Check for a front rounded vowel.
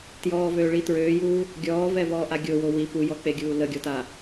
present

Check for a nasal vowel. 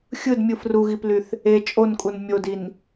absent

